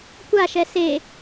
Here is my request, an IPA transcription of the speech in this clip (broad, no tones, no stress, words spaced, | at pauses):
kʷaʃɛ se